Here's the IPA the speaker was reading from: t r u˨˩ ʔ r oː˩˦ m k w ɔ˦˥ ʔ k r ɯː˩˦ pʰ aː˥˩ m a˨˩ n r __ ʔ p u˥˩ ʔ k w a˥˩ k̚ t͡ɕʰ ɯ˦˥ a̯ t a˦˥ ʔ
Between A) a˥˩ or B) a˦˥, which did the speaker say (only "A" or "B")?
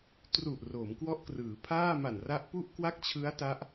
B